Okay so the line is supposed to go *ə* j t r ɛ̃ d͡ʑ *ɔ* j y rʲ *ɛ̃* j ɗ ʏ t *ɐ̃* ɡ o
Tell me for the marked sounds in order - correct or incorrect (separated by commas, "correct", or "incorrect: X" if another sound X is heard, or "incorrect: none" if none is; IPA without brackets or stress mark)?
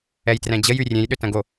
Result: incorrect: ɛ, incorrect: ə, incorrect: ẽ, correct